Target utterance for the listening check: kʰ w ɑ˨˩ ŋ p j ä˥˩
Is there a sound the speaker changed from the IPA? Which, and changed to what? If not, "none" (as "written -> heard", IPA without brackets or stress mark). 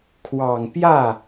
none